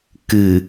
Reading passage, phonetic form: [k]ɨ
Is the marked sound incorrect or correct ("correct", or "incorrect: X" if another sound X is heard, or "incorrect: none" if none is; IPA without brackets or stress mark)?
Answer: correct